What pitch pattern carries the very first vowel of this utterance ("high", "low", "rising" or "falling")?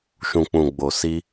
low